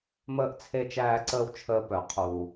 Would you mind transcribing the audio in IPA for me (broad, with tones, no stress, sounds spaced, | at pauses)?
m əː˦ ʔ t͡sʰ e˦ t͡ʃ æː˦ ǀ əː˦ w t͡ʃʰ əː˦ p œ˨ qʰ uː˨